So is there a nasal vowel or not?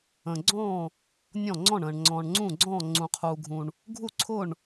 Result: yes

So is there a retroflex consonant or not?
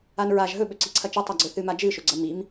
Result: no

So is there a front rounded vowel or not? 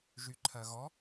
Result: yes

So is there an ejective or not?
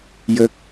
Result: no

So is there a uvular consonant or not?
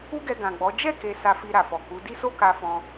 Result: no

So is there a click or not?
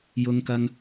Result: no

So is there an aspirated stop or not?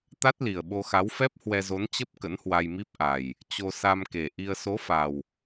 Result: no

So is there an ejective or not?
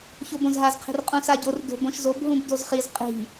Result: yes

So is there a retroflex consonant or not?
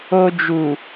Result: no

